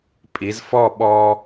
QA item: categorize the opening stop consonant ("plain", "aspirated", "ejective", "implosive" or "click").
ejective